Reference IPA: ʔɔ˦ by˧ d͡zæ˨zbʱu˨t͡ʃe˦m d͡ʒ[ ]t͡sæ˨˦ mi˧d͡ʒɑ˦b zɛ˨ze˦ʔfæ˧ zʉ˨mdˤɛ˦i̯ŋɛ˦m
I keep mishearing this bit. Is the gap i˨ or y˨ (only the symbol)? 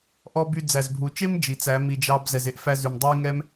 i˨